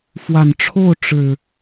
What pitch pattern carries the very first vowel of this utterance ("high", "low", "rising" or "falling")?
low